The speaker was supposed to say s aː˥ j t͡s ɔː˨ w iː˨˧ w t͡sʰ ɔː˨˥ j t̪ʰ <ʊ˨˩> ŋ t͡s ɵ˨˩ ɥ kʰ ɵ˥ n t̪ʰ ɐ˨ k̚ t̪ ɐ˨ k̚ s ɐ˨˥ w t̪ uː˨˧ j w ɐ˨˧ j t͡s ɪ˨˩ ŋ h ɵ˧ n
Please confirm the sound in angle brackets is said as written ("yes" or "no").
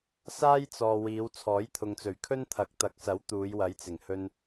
no